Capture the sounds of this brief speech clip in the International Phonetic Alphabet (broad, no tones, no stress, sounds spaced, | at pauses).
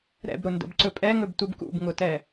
ɾ ɛ̰ b ɾ ʊ n d ə̰ b ǀ ɵ pʼ ɛ ŋ ɵ b t u b k ṵ b ŋ ʊ t ɛ